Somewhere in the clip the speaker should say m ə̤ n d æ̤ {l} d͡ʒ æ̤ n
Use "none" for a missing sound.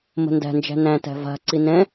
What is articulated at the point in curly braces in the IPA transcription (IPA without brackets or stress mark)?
n